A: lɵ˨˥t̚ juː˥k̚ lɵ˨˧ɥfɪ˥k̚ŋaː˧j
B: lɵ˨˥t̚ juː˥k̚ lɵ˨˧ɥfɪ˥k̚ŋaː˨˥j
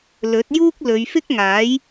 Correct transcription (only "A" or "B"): B